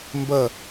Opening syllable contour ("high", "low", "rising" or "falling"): falling